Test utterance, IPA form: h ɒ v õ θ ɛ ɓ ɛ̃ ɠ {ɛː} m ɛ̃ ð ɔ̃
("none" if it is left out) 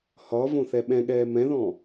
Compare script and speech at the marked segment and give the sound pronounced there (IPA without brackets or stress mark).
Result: ɛː